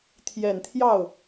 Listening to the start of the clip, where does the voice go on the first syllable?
low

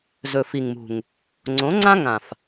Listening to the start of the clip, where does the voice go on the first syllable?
low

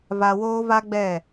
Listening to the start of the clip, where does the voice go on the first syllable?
low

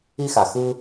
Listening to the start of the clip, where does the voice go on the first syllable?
high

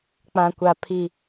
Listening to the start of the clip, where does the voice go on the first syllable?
low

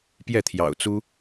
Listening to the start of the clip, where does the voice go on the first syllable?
falling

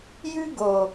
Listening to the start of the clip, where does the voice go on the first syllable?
high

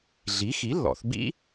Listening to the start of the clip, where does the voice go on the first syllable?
rising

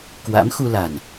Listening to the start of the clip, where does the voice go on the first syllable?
rising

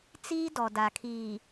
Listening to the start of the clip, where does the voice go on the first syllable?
high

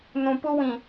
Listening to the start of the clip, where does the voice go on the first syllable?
low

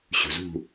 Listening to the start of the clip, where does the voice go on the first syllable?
low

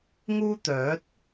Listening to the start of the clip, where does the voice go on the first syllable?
high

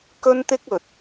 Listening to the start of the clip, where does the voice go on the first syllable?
high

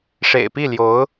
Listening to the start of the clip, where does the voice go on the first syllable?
low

